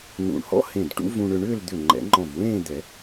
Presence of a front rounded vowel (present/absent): present